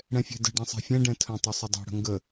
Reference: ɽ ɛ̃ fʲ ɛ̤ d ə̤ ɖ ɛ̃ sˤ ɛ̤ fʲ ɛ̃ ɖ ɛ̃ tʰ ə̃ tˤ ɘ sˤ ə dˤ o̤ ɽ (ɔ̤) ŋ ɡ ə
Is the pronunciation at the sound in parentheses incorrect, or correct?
incorrect